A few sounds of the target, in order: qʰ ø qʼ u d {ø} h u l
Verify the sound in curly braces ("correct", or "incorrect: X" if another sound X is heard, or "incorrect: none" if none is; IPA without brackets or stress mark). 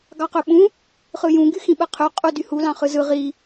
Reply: incorrect: y